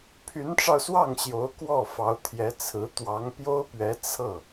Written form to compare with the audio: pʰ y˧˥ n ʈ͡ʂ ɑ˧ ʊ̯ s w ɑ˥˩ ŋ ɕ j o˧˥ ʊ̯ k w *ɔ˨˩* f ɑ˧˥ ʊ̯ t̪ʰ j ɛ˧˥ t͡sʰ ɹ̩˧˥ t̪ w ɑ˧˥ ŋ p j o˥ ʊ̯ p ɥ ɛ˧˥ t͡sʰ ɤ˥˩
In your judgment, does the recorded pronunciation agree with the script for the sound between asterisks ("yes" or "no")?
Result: no